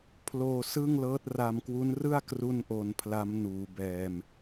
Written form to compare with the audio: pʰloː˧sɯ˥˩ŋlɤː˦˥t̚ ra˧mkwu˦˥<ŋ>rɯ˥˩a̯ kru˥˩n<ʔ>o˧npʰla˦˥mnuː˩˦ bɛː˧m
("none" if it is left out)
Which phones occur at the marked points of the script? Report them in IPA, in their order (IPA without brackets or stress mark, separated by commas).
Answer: n, ʔ